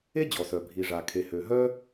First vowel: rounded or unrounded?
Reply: unrounded